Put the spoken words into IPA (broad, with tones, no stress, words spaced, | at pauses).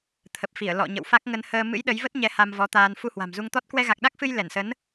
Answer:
t̪ʰə˨˩p̚fi˧˩ə̯ lɔ̰˧˨ ɲə̰˧˨wfa˦˥k̚ŋə˧n həː˧ mɨ̰˧˥jɗə˨˦jvə˦˥t̚ɲɛ˨˦ ha˧mvɔ˨˦t̪aː˧n fu˧hwa̤˨˩mzu˧ŋt̪ɔ˦˥t̚ kwɛ˧ɣa˨˩k̚ɗa˦˥k̚fɨ˧j lɛ˧˩nsə˨˦n